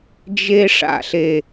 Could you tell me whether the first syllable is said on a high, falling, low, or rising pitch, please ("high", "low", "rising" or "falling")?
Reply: high